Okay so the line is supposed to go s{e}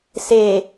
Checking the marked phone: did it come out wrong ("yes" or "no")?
no